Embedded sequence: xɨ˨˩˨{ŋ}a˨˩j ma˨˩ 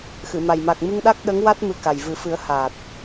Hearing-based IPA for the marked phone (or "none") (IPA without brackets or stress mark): m